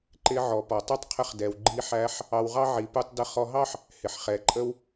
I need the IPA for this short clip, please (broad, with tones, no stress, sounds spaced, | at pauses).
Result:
ǃ ɪ˧˥ ʕ ɔ˩˧ p ɔ˩ tˤ u˥ tˤ qʰ ə˧ χ d ɛ˩ w ɡ͡ǃ i˧˥ ħ æ˧˥ ħ | ɑ˧ w ʁ ɑ˥ ʕ i˩˧ p u˧ tˤ d ə˧ χ ɔ˧ ɦ ɑ˥ ħ | h ɪ˩ ħ χ ɛ˩˧ ǃʼ ə˥ w